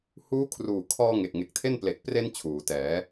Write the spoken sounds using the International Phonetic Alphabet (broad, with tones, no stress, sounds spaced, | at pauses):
h uː˦˥ kʰ r uː˨˩ kʰ ɔː˧ ŋ e˨˩ k̚ ŋ e˨˩ k̚ tʰ e˥˩ n p l e˨˩ k̚ p r e˧ n t͡ɕʰ uː˩˦ t ɛː˩˦